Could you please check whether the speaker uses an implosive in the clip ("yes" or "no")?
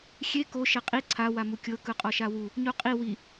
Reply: no